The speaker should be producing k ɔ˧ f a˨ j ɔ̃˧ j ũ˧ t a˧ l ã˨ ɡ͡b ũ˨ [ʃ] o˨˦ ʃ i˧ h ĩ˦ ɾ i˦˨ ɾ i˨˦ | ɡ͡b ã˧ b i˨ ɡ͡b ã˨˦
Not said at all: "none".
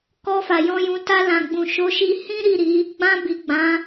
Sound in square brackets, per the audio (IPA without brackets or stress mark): ʃ